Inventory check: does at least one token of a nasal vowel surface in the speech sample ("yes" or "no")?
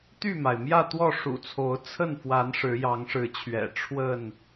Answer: no